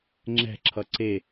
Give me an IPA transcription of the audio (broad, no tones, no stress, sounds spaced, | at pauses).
ŋ͡ǁ ɛ̤ ǁʰ ʌ ǀ e